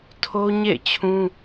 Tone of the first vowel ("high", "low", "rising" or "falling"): high